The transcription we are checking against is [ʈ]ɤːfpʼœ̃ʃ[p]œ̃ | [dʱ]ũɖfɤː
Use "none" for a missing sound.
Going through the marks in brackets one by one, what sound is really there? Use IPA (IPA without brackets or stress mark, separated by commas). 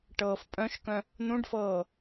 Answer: ʈ, k, n̪